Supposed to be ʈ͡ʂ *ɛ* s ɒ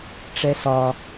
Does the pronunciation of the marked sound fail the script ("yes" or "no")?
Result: no